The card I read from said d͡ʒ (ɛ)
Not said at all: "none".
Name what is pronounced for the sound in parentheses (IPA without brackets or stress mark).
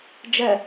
ɛ